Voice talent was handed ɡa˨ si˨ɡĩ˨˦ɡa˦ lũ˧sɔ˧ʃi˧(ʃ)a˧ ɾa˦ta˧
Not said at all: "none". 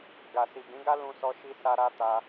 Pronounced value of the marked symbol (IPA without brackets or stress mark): s